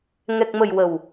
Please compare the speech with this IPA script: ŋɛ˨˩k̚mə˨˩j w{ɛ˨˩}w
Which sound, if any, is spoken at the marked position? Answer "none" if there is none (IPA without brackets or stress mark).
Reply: ə˨˩